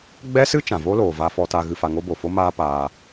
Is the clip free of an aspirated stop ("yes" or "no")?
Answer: yes